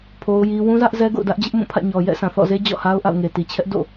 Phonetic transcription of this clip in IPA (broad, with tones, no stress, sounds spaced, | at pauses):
pʰ o˦ ʊ̯ j i˦ w ũ˦ z ä˦ ʔ z ɛ˦ ɡ o̰˦˨ ʊ̯ d ä˦ ʔ d͡ʑ ɪ˦ ʔ m ũ˦˨ pʰ ä̰˦˨ ɲ ɔ˨ j ɛ̰˦˨ s ã˨ θ ɔ̰˦˨ z e˦ d͡ʑ ɔ̰˦˨ h a˦ ʊ̯ ʔ a̰˦˨ ʊ̯ ŋ e˨ t i˨ t͡ɕʰ ɛ˦ ʔ d o̰˦˨